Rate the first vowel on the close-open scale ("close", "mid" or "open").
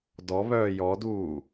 mid